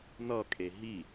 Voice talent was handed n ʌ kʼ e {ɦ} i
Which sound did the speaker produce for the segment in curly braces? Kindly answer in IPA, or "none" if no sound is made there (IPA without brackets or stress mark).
ɦ